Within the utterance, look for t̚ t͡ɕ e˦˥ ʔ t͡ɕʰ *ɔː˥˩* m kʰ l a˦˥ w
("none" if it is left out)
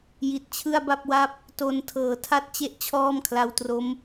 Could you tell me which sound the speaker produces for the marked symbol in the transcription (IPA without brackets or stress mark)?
ɔː˥˩